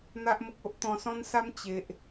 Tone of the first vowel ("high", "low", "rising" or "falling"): high